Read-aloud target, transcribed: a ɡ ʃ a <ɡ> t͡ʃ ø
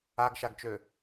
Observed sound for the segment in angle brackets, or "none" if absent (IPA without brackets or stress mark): ɡ